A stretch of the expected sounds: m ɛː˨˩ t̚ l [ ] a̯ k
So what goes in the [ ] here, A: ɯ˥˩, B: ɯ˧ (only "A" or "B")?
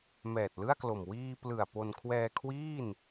A